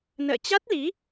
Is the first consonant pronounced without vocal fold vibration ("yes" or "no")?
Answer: no